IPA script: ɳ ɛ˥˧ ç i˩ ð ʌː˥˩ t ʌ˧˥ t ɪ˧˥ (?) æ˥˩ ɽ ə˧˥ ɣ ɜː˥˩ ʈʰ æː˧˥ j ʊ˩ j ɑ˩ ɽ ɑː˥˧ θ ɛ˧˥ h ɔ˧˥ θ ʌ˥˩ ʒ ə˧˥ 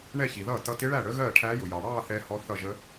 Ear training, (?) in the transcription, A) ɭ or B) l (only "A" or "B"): A